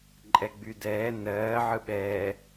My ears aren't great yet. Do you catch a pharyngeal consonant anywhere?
yes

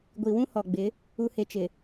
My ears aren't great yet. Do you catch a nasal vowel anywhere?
yes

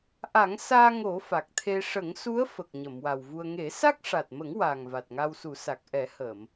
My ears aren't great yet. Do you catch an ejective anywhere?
no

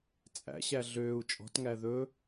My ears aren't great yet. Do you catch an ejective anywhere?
yes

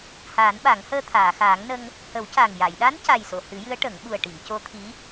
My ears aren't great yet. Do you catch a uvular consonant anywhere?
no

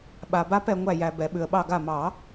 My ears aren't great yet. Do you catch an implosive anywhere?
yes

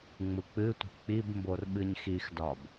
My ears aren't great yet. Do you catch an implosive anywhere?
yes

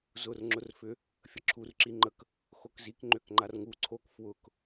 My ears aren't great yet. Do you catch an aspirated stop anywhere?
yes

